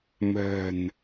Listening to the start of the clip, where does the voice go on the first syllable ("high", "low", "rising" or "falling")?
low